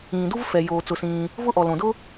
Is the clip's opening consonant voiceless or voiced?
voiced